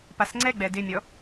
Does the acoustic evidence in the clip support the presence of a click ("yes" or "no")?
yes